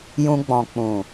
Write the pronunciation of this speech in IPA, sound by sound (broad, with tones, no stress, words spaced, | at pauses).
jũ˧ɡ͡bɔ̃˨ k͡pũ˨